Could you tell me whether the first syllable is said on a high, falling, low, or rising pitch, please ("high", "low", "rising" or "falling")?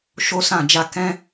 high